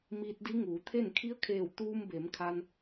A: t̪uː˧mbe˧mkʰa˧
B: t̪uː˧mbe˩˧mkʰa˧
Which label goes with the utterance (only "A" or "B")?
B